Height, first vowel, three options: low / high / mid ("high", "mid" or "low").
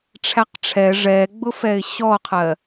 low